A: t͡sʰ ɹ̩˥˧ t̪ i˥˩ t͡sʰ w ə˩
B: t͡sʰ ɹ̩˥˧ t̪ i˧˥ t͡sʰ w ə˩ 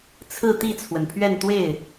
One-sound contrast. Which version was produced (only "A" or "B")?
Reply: A